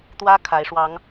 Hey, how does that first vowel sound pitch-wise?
high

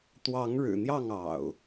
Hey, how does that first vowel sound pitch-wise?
rising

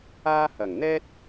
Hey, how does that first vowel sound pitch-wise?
high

